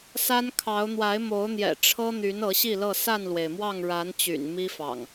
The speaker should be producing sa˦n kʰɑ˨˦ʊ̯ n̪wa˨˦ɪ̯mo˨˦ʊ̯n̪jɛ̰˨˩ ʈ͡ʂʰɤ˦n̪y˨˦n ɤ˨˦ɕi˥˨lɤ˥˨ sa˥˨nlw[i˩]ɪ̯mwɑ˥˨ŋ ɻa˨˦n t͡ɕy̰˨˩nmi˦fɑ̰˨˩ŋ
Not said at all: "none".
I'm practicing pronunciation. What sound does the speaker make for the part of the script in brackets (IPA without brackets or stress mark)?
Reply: e˩